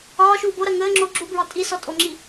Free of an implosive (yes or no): yes